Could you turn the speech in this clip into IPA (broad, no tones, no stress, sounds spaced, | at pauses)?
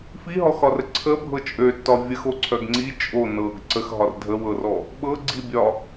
f i ɦ ɔ x ɒ r ə ǀʰ ə bʱ ɤ t͡ʃʼ ø tː ɒ vʲ ə x o ǀʰ œ ɡ ŋ͡ǀ i t͡ʃʼ o n ɤ ɡ ǀ ə x ɦ ɒ r dʱ ə w ɤ r ɔ | ɓ ɤ ɡ͡ǀ i bʲ ɒ